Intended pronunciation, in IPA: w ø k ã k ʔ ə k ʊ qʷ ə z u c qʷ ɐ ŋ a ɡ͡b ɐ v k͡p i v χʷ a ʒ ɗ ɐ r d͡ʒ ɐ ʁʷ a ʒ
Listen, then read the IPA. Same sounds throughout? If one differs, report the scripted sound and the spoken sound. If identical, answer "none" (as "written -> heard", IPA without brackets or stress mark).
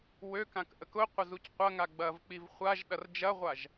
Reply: none